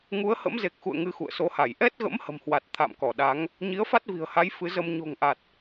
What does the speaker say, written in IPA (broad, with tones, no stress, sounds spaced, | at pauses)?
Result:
ŋ u˨˦ ə̯ h ə̰˧˥ m z e˨˩ k̚ x ṵ˧˨ ə̯ ŋ ɨ˧ x ṵ˧˨ ə̯ s o˨˦ h a˧˩ j ʔ ɛ˦˥ t̚ ɣ ə̰˧˥ m h ə̤˨˩ m h w a˨˩ t̚ t̪ʰ a̰˧˨ m k ɔ˧˩ ɗ a˨˦ ŋ | ɲ i˨˦ ə̯ f a˦˥ t̚ v i̤˨˩ ə̯ h a˨˦ j f ɨ˨˦ z ə˧ m ɲ o̤˨˩ ŋ ʔ a˨˩ t̚